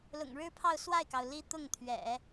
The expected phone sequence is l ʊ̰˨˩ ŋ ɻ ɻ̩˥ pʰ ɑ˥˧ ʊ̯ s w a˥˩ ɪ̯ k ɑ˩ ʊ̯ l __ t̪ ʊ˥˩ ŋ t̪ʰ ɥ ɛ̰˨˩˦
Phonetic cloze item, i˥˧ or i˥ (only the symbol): i˥